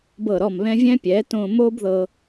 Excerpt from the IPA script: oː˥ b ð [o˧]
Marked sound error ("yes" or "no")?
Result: yes